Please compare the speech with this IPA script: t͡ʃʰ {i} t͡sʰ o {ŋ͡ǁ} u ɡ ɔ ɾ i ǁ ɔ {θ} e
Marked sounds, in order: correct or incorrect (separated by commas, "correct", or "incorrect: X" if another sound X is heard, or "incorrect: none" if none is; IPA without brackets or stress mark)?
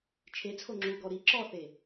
incorrect: e, correct, correct